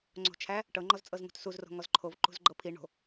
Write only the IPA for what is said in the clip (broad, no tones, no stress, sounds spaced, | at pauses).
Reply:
ŋ͡ǀ o̤ t͡ʃʰ æ | ʈ ɤ ŋ͡ǃ ɔ z t͡sʼ ɤ z ŋ ṳ t s u z r o̤ ŋ ɔ z ǃʰ o v ǃ ṳ z ɡ͡ǃ ɤ pʰ i ɳ o̤